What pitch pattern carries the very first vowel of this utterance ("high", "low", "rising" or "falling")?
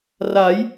rising